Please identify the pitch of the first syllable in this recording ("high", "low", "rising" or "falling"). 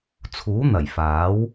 rising